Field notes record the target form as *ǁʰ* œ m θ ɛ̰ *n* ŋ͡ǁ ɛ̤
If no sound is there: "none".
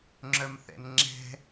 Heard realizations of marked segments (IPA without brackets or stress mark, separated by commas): ŋ͡ǁ, n